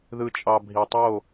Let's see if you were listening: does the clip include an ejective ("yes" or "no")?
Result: yes